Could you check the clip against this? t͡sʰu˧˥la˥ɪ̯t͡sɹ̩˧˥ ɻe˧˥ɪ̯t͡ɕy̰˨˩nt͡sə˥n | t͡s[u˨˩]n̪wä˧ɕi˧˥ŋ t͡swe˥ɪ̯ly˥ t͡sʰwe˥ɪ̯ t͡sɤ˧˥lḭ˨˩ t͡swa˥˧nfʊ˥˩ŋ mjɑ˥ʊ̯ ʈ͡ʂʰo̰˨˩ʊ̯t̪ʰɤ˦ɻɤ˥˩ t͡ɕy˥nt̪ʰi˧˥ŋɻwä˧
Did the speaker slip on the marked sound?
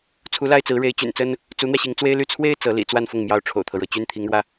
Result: yes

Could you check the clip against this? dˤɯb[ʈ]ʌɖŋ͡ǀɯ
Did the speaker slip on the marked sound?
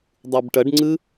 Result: no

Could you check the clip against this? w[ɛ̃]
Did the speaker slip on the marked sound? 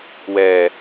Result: yes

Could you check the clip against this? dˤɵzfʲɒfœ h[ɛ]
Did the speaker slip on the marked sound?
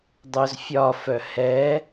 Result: no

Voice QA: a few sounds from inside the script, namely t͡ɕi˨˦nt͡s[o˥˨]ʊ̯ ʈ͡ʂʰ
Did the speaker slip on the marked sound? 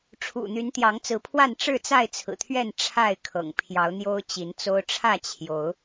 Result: yes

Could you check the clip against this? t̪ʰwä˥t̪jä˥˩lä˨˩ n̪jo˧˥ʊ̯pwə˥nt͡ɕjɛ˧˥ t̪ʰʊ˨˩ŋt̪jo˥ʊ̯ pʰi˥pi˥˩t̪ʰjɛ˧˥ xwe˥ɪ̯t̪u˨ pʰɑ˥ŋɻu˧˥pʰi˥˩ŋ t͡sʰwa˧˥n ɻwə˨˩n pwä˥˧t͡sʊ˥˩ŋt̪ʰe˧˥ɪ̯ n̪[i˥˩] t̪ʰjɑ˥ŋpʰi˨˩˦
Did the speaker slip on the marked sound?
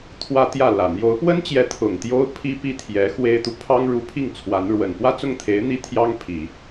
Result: no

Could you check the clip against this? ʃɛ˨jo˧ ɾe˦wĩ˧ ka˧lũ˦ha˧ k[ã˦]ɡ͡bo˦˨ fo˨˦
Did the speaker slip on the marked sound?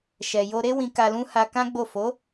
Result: no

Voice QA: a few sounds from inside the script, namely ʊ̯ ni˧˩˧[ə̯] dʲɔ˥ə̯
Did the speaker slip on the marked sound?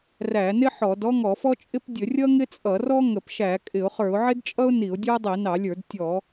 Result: yes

